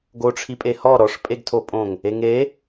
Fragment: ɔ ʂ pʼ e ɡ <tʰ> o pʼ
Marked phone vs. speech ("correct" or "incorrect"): correct